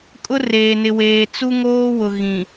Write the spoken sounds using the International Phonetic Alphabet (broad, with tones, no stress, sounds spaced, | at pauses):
kʼ ʊ˦ r eː˨ n ɪ˨ w eː˨ t͡s u˦ ŋ oː˦ w ʊ˨ ɣ ĩ˨